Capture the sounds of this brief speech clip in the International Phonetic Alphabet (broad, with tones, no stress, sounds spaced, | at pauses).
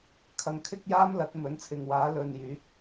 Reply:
kʰ ɐ˨ ŋ kʰ ɪ˥ k̚ j aː˥ m l ɐ˨˥ t̚ m ɵ˨˥ n t͡sʰ ɪ˨ ŋ w aː˨˥ l ɵ˨ n j yː˨˥ k̚